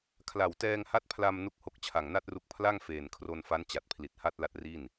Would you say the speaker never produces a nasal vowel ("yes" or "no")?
yes